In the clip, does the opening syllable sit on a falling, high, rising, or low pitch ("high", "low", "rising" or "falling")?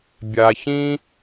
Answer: low